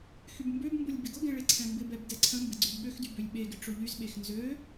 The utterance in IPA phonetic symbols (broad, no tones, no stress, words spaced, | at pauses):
xybmbøbmbʊlʲ bɪɡʊɡɛ̃ ɭeǀʰɛ̃mbɪbɛb dɛǀʰə̃mbɪ ɡ͡ǀybɠøxdy bølʲɓeɡɪ ʈ͡ʂʊʎyzɓex nzø